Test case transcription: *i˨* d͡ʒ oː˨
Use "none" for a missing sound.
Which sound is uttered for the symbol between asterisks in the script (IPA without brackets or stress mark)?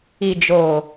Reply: i˨